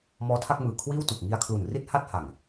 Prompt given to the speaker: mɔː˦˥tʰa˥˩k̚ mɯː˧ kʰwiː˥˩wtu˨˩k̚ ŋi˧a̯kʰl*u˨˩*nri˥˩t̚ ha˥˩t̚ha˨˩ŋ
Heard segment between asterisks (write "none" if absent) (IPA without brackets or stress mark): u˨˩